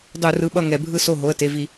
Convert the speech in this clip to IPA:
dˤ u˧˩˧ r ɯ˩˧˩ ɓ ʌ˥˩ ŋ ɛ˧˩˧ bʱ ɯ˥˩ s o˥˩ ɦ o˩˧˩ ə̯ t e˩˧˩ v i˧˩˧

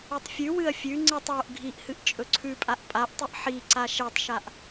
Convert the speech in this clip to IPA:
i tˤ fʲ ʉ w ɨ ɐ̯ fʲ ʉ ŋ͡ǀ ɨ tˤ w o ʔ ɡʱ i ʔ h ɨ ʔ t͡ʃʼ ɵ ǀʰ ʉ pʼ a ʔ pʼ a ʔ tˤ ɨ ʔ ħ i ǀ a ʃ e tˤ ʃ a ʔ

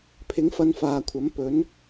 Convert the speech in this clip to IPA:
pʰ ɪ˨˥ ŋ f ɐ˨˧ n f aː˨ kʷʰ ɐ˨˥ m p ɵ˨˥ n

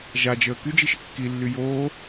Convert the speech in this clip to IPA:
ʒ a d͡ʒ əː k y d͡ʒ i ʃ ə kː i lː y j oː

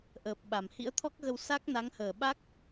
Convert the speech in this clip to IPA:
ʔ əː˨˩ p̚ ɓ a˧˩ m h ḭ˧˥ ə̯ t̪ʰ ɔ˦˥ k̚ ɣ ə˧ w s a˦˥ k̚ n a˨˦ ŋ h əː˧˩ ɓ a˦˥ k̚

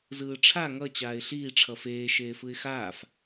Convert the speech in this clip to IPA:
z ɯː ʈ͡ʂʰ a ŋ ʌ t͡ɕ aː ɪ̯ ɬ iː ʈ͡ʂʰ ʌ f eː ʃ eː f ɯ ɪ̯ x aː f

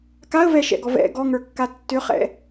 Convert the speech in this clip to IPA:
k a ə̯ v ɛ ʃ ɛ̰ ɡ ɔ v ɛ̰ ɡ ɔ ŋ ə˞ kː a tː ʏ χ ɛ̰

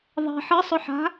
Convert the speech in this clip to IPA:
ðˤ ɛ̤ ħ ə sˤ ʊ ħ a̤

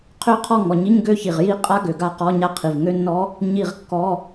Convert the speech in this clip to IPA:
qʰ ø˦˥ qʰ ɔ˦˨ ŋ ɔ˨˩ ɲ i˧˥˧ ɲ ɡ ø˦˥ ç i˨˩ ʁ j i˦˥ qʼ a˦˥ ɡ ø˨˩ ɡ a˦˨ q ɔ˧˥˧ ɲ a˦˨ qʰ i˨˩ v ŋ ø˦˥ nː ɔ˦˥ | ɲ i˦˨ ʁ kː ɔ˧˥˧

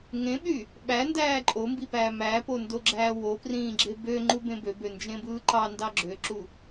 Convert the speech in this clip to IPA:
ŋ ẽ ɓ y | ɓ æ n d æː ǃʼ o m b i p æː m æ p o n d o ɡ͡ǁ æː w o p r ĩː ɡ͡ǁ e b ø ŋ͡ǃ u b ẽ b ø b ø n d͡ʒ ẽ b ɯː ǃ ɑ n d ɑ ɡ͡ǁ ø ǁ u

